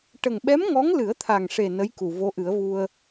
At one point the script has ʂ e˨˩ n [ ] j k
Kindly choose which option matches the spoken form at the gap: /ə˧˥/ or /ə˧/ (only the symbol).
ə˧˥